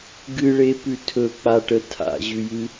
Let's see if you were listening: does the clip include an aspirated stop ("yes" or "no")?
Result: yes